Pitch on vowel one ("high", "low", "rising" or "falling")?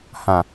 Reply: low